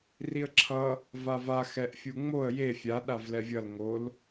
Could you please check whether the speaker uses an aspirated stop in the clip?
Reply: yes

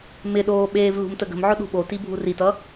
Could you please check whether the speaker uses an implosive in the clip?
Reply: yes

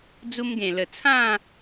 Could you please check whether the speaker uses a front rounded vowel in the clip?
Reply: no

